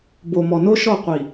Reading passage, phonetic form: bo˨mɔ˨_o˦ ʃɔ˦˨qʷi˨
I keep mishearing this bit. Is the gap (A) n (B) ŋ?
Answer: A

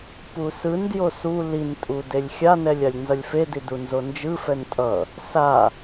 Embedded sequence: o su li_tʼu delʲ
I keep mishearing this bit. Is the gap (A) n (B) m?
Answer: A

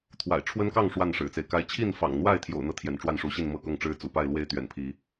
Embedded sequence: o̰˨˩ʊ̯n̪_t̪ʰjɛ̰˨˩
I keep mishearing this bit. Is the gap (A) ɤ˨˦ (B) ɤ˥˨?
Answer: B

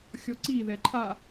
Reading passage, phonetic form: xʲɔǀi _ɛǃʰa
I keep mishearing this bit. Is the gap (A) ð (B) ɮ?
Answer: A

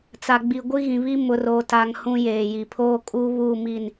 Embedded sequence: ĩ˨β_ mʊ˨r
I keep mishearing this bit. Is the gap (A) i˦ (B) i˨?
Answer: A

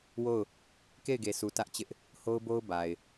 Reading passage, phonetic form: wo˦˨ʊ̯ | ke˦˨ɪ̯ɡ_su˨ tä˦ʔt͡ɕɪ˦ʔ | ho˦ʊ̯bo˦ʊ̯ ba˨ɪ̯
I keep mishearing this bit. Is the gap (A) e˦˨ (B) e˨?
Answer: B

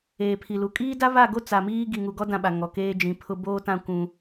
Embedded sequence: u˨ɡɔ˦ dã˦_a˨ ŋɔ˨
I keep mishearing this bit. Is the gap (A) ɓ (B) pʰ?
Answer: A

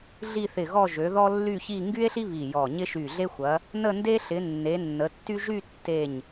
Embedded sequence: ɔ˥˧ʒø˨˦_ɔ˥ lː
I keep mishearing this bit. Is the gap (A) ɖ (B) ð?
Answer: B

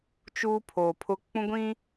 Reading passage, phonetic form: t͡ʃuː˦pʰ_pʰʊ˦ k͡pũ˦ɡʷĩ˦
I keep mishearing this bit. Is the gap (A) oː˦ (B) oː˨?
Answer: B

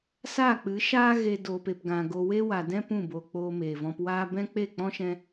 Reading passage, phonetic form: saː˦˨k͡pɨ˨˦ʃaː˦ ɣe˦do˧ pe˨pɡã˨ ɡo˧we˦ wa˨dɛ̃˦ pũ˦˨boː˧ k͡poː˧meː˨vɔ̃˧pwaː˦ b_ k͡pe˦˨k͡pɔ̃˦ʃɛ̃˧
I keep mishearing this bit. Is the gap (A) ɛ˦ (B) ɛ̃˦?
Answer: B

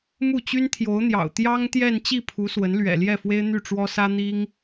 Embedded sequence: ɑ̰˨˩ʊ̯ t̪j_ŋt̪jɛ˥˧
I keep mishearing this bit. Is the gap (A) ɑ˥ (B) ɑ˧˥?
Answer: A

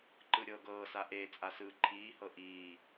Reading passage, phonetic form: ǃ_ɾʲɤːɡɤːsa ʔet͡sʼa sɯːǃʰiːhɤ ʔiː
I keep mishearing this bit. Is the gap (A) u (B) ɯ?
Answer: B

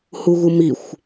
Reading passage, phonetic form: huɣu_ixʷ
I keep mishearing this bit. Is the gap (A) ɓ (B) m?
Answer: B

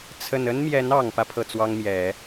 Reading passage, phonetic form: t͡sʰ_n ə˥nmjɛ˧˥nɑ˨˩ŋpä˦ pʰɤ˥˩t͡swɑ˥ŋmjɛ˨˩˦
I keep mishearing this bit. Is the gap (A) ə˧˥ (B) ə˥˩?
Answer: B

